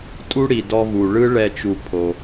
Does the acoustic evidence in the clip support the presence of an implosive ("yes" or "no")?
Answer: no